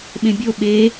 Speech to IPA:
ɓ ẽ bʲ o ɓ e

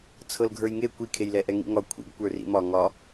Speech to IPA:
t͡sʰ ɤ l ɡʱ ə˞ j ŋ e kʷ i kʰ e j l ɛ ʔ ɛ ŋ ḭ ŋ ɒ kʷʰ ḭ ɡ kʷ ə˞ r ḭ m ɒ ŋ ɒ

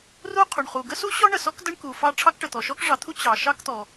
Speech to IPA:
r u˥ qʰ u˩ ɳ χ u˩ ɡ ə˥ s u˥ ɕ ɔ˥ ɳ ə˩ s ɔ˥ k d ə˥ ɳ k u˩ f ɑ˥ ʈ͡ʂʰ ɑ˥ k ʈ ə˩ t̪ ɔ˩ ʃ ɔ˥ k ʐ ɑ˩ t̪ʰ u˥ t͡ɕ ɑ˩ ʃ ɑ˥ k t̪ ɔ˩

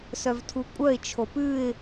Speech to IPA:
s œ v tʰ u kʷʼ œ ɪ̯ t͡ʃʰ o p ʉ ɪ̯

